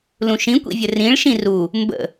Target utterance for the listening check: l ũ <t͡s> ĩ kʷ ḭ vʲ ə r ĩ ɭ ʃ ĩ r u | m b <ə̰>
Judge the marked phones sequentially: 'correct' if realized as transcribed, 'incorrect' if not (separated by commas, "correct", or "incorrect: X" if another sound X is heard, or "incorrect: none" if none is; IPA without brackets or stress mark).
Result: incorrect: ʃ, correct